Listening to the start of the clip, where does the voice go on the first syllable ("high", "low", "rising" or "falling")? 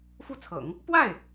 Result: falling